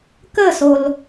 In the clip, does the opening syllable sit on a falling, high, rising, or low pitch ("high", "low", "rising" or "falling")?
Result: falling